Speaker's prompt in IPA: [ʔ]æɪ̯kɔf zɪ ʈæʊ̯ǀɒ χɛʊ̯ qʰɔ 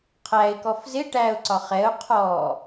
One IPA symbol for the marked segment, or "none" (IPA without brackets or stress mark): qʰ